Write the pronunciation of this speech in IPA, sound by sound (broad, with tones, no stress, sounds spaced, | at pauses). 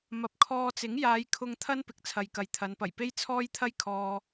m ɐ˨ p̚ kʰ ɔː˧ t͡s ɪ˨˥ ŋ j aː˨˧ j kʰ ʊ˧ ŋ t̪ʰ ɐ˥ n p ɪ˨ k̚ t͡sʰ ɐ˨ j k ɐ˨ j t̪ʰ ɐ˨˧ n p ɐ˨˩ j p e˥ j t͡sʰ ɔː˥ j t̪ʰ ɐ˥ j kʰ ɔː˧